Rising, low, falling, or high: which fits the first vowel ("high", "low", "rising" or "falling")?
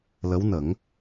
rising